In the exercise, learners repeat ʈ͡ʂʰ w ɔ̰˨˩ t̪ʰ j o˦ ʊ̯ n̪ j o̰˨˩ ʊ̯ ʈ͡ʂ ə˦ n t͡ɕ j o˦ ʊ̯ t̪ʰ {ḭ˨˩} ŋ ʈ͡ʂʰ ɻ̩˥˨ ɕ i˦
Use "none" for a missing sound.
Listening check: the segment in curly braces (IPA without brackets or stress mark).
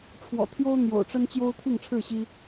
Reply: i˥˨